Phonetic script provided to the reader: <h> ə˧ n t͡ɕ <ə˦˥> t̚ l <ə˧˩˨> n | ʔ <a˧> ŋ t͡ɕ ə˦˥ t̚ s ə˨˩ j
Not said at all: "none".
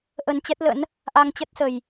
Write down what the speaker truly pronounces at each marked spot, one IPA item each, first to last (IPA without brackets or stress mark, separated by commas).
ʔ, ɛ˦˥, ə̰˧˥, a˧